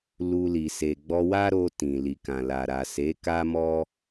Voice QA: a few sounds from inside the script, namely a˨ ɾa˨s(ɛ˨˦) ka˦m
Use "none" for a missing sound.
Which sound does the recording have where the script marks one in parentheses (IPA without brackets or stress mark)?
e˨˦